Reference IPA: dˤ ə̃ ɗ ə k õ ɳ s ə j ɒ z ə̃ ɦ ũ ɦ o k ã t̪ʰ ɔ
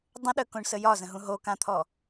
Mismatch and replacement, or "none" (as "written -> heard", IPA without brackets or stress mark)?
none